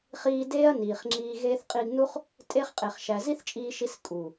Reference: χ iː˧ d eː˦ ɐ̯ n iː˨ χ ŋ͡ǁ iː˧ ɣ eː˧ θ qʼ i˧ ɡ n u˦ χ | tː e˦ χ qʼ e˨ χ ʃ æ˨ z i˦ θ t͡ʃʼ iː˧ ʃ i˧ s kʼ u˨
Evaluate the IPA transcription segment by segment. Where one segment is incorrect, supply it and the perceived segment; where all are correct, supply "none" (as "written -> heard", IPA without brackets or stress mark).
tː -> tʼ